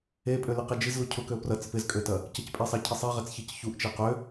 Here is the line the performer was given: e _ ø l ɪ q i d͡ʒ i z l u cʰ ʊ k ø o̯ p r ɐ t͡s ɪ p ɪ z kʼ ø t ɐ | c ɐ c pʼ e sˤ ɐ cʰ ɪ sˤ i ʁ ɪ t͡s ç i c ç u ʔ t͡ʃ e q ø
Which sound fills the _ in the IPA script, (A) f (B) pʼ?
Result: B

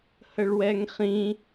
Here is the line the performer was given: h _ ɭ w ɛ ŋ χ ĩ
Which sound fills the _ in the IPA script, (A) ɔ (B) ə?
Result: B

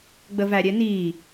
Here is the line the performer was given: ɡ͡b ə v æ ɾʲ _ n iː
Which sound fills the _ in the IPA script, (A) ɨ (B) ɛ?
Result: B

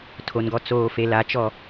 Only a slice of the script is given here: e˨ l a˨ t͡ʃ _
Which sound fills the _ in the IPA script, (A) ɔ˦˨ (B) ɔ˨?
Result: A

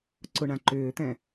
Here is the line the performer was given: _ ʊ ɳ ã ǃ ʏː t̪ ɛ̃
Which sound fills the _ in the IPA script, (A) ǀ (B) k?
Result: A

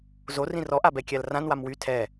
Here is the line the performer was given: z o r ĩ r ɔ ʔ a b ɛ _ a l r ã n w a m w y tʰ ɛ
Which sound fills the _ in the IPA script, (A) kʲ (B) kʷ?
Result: A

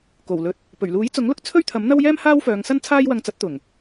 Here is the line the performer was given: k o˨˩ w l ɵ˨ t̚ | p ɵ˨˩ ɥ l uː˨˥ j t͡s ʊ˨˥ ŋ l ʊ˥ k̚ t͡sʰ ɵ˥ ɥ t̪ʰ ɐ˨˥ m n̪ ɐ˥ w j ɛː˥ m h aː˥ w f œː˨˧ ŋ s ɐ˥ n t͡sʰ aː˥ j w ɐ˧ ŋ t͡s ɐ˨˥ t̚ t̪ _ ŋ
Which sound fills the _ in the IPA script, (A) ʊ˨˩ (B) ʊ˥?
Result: A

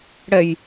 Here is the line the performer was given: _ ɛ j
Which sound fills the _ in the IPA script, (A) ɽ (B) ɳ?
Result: A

